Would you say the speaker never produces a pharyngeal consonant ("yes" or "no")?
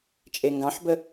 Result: no